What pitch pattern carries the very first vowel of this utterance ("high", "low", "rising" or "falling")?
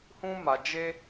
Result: high